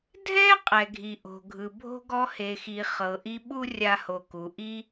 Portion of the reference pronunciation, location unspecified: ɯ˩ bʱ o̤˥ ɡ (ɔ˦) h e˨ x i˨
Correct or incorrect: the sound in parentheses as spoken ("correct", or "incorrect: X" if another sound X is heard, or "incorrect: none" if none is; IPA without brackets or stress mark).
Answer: correct